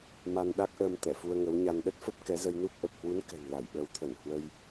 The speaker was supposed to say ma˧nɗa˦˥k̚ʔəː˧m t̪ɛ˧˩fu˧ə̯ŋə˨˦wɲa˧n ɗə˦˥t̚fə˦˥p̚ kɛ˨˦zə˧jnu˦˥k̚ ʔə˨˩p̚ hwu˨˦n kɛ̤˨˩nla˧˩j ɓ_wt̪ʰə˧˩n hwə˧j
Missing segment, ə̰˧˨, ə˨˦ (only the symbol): ə˨˦